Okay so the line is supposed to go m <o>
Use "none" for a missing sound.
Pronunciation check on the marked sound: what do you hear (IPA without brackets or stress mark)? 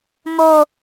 o